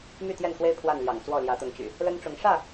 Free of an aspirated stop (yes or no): no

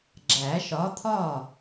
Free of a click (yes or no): no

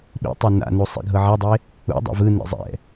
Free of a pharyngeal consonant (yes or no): no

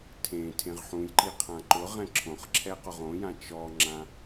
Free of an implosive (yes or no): yes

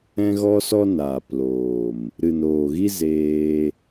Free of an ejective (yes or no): yes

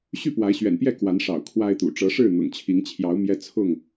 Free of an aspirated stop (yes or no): no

